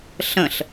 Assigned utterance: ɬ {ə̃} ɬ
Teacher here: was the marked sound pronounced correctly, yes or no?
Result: yes